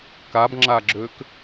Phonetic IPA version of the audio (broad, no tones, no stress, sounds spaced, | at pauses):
k a b ŋ͡ǁ a ɡ͡ǁ ø k